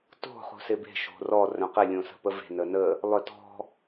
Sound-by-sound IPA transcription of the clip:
t o̤ χ ṳ s ɪ b e̤ ʃ o̤ r ɔ r œ̃ q ɪ lʲ õ s ə̤ p ə v e̤ n ə n ə | lˠ œ t ɔ̤

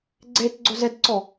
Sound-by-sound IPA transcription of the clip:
ɡ͡ǀ e t ɡ͡ǀ ʊ z ɛ d ǀ ɔ

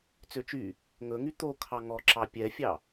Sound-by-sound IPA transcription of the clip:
t͡s ø t͡ʃ y | ŋ ɵ ŋ y t̪ o kʰ ɑ ŋ ɔ ǁ ɑ pʲ ɛ fʲ ɑ

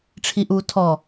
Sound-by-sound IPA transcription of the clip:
ʈ͡ʂʰ i ʔ uː tʰ ɔ

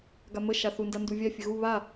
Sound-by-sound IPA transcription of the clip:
ɡ a m ə ʃ a θ u n d a n d u vʲ a fʲ ə ɣ u β a

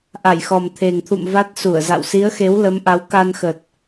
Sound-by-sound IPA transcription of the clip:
ʔ a˧˩ j x ɔ˨˩ m t̪ʰ e˨˩ ŋ t̪ʰ ṵ˧˨ m v a˦˥ t̚ s u˧˩ ə̯ z a̰˧˨ w s i˨˦ ə̯ x e˨˦ w l ə˨˦ m ʔ a˨˦ w k a˧ n x ə˨˩ t̚

